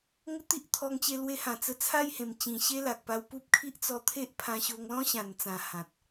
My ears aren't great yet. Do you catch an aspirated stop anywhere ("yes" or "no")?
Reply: yes